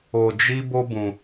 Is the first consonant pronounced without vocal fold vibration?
no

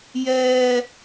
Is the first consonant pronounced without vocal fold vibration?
no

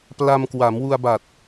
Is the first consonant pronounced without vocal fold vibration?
yes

